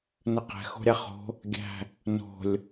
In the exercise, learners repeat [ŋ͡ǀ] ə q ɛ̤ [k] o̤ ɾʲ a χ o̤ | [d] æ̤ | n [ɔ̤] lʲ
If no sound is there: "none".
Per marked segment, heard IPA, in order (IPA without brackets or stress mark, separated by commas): n, x, ɡʲ, o̤